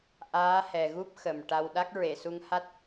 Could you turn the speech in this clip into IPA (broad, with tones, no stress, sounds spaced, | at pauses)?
ʔ aː˧˥ h ɛ˨˩ ɣ u˦˥ p̚ x ə˨˩ m ʈ a˧ w ɗ a˦˥ k̚ ɹ e˨˩˨ s u˧ ŋ h a˦˥ t̚